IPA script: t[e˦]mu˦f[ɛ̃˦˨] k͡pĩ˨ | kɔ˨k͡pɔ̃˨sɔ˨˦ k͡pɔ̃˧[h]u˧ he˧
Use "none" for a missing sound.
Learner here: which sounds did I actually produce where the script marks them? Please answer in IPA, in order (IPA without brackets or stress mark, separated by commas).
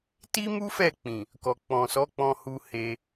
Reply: i˦, ɛ˦˨, h